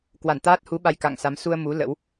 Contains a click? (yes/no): no